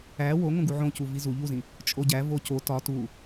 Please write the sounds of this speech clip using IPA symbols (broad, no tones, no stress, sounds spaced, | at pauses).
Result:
æ w o ŋ õ ɡ u ʕ õ c u v i z u ʎ u z ĩ | t͡ʃʼ o ɟ æ v o c o t ɒ t u